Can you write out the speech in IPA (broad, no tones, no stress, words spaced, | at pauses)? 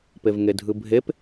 pevŋedʱɯbʱep